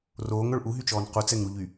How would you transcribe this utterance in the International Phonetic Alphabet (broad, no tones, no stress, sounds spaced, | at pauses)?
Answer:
r oː ŋ œ ɭ ʔ u ɦ y t͡ʃ ɔː n q u t͡s ɛ ŋ ɾ u ʎ y